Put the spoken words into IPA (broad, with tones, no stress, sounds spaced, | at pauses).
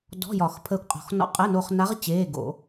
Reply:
d ɔ̤˧˥˧ j ɒ˨˩˦ x pʰ əː˧ kʷ qʼ ɔ̤˨˩˦ x n ɔ̰˧˥ qʼ əː˧˥˧ n oː˧ χ n a˧˥ ʁ t͡ɕ eː˧˥˧ ɡ o̰˨˩˦